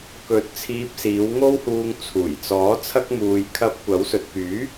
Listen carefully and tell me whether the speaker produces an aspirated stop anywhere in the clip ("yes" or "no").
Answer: yes